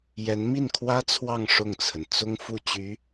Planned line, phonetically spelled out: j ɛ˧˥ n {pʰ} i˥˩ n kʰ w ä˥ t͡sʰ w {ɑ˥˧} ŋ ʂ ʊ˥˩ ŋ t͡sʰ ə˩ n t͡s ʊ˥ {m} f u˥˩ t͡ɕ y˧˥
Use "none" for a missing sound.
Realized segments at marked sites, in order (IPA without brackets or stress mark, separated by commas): m, ɑ˥˧, ŋ